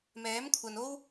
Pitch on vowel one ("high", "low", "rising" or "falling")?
rising